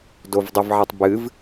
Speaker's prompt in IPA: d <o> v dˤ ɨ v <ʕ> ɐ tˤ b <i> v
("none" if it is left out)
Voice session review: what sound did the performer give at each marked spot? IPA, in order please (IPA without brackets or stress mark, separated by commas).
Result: o, ʕ, ɨ